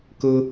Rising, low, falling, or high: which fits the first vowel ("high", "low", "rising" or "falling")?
high